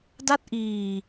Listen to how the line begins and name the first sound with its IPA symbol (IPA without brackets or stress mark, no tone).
d